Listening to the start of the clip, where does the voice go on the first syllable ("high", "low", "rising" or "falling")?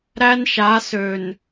high